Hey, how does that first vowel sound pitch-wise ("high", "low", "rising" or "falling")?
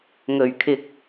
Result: low